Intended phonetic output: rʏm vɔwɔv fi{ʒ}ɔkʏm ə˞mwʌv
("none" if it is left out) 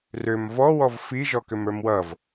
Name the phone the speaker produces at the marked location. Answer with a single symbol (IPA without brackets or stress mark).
ʒ